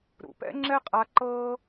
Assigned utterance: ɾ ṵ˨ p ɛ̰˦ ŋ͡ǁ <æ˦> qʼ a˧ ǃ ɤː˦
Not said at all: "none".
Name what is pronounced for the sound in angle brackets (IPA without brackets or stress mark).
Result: ɛ˦